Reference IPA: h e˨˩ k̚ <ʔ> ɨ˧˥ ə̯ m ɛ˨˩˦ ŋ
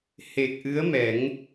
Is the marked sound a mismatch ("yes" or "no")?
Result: no